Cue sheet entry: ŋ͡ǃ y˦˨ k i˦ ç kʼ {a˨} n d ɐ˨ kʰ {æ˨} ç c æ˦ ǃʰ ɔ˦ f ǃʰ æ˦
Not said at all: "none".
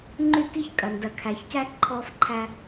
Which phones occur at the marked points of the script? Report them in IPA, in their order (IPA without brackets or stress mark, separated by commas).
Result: ɐ˨, æ˨